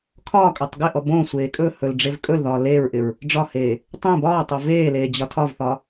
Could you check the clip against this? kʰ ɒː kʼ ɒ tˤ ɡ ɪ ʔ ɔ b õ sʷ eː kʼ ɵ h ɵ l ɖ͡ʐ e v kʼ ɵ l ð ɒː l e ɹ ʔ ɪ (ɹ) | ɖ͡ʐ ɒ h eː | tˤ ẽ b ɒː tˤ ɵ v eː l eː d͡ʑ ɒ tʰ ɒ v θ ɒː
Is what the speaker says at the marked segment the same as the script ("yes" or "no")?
yes